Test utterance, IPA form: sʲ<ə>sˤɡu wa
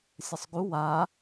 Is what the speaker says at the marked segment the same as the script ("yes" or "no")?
yes